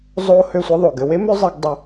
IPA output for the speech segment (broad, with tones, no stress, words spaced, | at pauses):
zˤo˦ hø˦˨sʷɘ˦ðˤo˨ɡ ɘ˨we˦mø˦ zˤe˦ɡ dˤɘ˧